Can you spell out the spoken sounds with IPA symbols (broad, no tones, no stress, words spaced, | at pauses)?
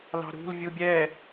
lɑ̤ɾṳl vʲubʲɛː